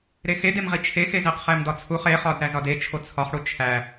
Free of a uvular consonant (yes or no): no